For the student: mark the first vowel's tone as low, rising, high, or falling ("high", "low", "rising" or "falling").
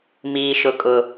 high